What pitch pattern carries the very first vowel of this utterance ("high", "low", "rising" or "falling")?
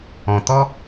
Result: low